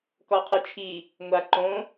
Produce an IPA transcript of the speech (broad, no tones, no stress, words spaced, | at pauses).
kɔqʰit͡ʃʰi | ŋʷa ǃõ